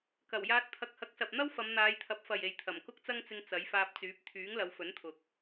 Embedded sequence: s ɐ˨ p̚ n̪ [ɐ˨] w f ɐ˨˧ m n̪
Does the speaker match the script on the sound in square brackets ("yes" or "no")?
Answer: no